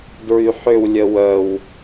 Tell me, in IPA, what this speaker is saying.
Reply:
d ɹ y ħ ʏ w lʲ ə w œ w

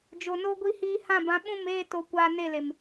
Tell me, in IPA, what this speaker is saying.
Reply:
d͡ʒ o˨ n o˧ ɡʷ i˧ h iː˧ h ã˦˨ b ã˨˦ ɓ ũ˦˨ m eː˦˨ t o˧ kʷ aː˧ n e˦˨ l e˨ m

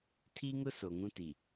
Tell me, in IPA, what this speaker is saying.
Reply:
tʰ i˦ ŋ ʊ˦ s o˨ ŋ ũ˦ t i˨

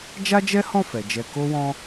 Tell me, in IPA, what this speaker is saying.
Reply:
d͡ʒ a˦ d͡ʒ ɛ˦ h ɔ̃˦˨ f ɛ˨ d͡ʒ ɛ˧ k o˦ w ɔ̃˦

